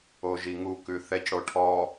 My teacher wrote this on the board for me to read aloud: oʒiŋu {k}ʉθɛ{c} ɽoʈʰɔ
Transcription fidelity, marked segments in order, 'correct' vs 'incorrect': correct, correct

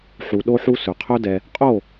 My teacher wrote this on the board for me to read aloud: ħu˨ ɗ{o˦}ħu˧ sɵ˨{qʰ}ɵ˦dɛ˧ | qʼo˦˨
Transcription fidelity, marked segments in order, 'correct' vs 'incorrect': incorrect: o˧, correct

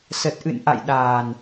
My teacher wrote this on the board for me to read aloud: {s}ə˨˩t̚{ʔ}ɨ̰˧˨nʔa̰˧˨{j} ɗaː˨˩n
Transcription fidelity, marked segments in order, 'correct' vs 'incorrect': correct, correct, correct

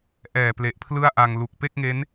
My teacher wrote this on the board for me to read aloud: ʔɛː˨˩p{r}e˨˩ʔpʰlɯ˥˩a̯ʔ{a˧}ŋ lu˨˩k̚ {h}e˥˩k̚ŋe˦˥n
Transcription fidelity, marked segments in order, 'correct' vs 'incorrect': incorrect: l, correct, incorrect: p

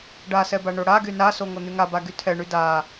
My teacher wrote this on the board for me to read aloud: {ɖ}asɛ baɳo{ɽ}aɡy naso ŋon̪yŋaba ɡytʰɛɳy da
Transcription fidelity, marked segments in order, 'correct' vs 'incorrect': correct, correct

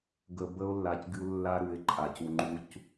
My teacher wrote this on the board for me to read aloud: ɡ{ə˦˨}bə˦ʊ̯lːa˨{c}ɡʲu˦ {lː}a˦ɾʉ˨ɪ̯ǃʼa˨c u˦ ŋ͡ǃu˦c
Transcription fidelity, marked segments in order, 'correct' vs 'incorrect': incorrect: ə˨, correct, correct

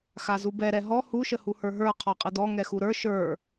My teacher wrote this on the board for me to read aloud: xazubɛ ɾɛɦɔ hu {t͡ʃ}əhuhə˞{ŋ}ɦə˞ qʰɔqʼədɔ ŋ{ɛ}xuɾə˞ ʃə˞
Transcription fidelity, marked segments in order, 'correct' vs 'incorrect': incorrect: ʃ, incorrect: none, correct

